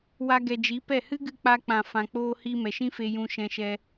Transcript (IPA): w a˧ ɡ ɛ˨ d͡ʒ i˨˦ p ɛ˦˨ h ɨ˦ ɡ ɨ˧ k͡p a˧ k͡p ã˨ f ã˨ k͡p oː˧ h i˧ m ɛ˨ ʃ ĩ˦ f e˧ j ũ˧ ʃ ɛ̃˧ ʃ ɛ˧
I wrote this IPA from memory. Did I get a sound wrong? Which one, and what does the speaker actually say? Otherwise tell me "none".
none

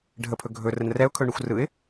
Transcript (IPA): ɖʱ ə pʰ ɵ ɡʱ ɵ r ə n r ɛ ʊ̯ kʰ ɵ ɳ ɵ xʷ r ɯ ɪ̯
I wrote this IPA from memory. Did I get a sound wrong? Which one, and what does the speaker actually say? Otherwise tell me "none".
none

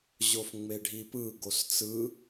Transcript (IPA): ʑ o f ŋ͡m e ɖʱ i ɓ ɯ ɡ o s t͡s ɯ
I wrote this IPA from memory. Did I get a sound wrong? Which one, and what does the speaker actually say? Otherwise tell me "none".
ɓ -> p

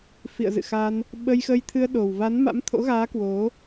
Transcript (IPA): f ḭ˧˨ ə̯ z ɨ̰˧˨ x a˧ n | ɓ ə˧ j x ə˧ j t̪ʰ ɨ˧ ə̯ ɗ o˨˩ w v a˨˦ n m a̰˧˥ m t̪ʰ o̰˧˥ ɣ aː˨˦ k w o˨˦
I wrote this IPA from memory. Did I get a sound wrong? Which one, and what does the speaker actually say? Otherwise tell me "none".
none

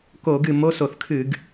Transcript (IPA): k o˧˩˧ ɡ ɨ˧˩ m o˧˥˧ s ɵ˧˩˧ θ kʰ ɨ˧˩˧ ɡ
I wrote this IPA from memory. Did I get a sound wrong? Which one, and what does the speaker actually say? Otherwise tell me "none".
ɵ˧˩˧ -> o˧˩˧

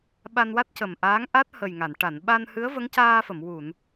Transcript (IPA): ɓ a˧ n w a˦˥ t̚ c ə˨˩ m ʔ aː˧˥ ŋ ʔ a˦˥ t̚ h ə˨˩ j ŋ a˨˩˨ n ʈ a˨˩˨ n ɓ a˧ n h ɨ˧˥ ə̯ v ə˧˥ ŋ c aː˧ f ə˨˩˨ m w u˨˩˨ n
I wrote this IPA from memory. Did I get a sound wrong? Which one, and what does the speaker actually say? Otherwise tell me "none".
none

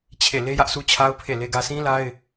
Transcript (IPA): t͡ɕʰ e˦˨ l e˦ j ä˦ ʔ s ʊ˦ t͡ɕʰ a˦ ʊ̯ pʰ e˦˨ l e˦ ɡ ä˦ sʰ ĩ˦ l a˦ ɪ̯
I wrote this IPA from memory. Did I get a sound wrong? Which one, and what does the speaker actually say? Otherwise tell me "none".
ʊ˦ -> u˦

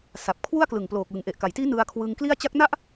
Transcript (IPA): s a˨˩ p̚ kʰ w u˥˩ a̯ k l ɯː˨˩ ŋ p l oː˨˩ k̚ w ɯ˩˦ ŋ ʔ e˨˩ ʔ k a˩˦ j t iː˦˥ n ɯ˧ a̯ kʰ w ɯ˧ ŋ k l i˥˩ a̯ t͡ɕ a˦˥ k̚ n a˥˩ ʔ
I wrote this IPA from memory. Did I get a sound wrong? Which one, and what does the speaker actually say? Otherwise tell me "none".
ɯː˨˩ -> ɯ˨˩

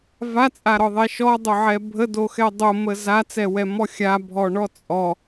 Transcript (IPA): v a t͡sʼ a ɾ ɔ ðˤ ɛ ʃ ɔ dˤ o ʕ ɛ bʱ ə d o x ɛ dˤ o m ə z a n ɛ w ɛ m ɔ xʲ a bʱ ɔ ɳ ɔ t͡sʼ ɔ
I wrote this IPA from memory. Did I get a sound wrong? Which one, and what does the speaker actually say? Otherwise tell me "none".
n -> t͡s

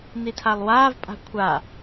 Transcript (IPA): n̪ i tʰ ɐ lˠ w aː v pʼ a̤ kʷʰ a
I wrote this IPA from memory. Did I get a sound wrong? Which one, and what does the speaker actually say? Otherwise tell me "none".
ɐ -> a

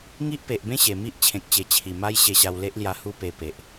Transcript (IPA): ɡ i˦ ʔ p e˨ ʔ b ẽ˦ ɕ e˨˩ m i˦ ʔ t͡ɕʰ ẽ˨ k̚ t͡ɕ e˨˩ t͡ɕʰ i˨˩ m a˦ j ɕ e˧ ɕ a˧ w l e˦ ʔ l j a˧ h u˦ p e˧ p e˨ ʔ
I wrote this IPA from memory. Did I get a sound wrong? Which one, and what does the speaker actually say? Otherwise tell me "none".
ɡ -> ŋ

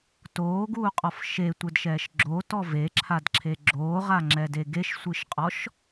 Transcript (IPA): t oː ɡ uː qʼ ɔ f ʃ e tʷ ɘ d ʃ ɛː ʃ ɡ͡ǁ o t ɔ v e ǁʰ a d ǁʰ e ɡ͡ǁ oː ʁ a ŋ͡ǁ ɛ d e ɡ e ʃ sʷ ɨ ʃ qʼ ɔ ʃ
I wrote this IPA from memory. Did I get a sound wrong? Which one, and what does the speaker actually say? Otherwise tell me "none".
none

